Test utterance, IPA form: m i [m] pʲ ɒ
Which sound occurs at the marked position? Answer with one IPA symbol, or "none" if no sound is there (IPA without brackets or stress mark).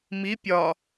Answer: none